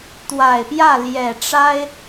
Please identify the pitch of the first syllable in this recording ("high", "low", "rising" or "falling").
low